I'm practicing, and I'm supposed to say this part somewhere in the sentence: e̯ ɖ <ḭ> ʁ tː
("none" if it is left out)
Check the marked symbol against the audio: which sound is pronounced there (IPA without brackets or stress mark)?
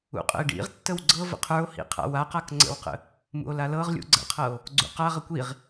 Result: ḭ